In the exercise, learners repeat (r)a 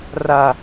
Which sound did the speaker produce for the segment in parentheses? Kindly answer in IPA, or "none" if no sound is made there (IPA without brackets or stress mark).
r